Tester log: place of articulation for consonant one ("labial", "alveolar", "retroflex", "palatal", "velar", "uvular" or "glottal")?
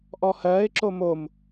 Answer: glottal